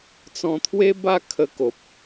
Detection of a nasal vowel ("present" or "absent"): present